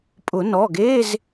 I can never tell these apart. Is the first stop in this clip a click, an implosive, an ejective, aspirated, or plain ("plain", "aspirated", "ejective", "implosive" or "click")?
ejective